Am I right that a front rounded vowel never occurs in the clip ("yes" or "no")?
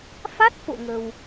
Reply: yes